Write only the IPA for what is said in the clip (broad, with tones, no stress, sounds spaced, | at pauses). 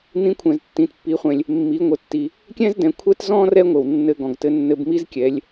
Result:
n̪ ĩ˧˥ kʷʰ ɛ̃˩ z tː ĩ˩ t pː i˩˧ χʷ ɛ̃˩ lʲ | mː i˩˧ ŋʷ ɘ˩˧ tː i˩ | kʲ ɛ̃˥ z d ɛ̃˩˧ kʷʰ ɛ˥ t z ɔ̃˥ r ɛ˥ ŋʷ ɘ˩ w nː ɘ˧ ɡ ɔ̃˩ ɡ t ɘ˧ nː ɘ˧ b m i˥ z kʲ ɛ˩˧ lʲ